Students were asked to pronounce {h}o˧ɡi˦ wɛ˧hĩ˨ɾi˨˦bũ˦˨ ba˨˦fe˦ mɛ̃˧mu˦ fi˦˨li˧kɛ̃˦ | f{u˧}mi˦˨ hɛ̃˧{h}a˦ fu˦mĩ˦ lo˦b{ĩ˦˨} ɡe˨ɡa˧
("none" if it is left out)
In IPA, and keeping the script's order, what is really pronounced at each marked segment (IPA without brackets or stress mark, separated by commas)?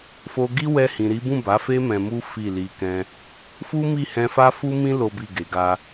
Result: f, u˦, f, i˦˨